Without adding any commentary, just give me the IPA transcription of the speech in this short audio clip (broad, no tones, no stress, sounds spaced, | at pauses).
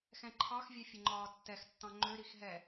x ɛ̃ ǃʰ ɑ x vʲ ø fʲ ə ŋ͡ǃ ɒː tː ɛ x tː ɑ̃ ŋ͡ǃ ø ɾ i x ɦ ɛ